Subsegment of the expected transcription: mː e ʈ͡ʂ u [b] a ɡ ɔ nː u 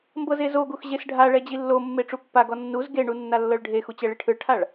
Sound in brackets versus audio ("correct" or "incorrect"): incorrect